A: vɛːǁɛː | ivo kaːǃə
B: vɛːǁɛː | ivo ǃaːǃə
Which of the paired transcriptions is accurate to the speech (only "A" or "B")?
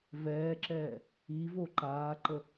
B